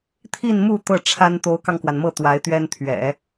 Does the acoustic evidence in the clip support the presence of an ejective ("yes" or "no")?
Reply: no